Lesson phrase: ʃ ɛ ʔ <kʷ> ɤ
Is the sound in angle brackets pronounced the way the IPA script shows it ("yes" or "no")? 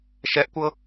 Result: yes